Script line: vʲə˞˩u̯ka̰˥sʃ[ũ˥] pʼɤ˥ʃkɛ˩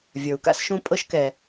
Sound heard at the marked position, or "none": ũ˥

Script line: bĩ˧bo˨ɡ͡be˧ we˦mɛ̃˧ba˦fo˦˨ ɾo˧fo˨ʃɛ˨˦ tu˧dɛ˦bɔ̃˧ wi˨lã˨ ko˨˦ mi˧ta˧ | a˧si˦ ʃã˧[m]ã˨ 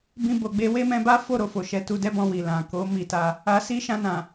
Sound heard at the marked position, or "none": n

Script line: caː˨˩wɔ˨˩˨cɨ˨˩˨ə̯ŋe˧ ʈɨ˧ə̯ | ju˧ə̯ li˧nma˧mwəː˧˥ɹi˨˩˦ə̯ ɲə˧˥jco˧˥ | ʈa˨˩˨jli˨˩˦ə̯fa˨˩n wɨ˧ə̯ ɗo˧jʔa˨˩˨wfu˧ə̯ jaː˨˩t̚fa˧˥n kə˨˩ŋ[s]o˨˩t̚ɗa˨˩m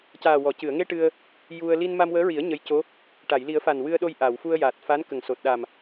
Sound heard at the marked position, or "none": s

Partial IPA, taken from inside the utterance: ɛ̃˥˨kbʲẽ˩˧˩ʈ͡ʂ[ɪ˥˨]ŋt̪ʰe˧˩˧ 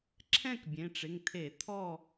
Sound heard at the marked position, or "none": ɪ˩˧˩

